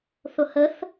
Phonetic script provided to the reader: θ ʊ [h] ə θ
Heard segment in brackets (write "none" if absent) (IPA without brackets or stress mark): h